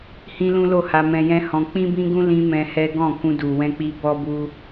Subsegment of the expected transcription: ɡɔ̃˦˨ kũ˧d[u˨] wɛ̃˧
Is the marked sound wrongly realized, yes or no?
no